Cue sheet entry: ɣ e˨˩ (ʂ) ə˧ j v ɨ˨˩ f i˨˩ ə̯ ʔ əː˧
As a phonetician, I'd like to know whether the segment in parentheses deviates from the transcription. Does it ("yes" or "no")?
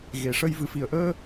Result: no